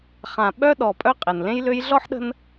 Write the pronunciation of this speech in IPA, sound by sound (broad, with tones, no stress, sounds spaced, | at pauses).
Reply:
χ ã˨ ɓ œ˦ ɗ ɔ˨ pʼ œ˦ qʼ ɛ˨ n l ẽ˦ j l ø˧ j ɮ ɔ˦ ħ ɗ ə̤˦ n